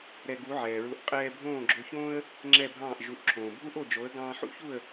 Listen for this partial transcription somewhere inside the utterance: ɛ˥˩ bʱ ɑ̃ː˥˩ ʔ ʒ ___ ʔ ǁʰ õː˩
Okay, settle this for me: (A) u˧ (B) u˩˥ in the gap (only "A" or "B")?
B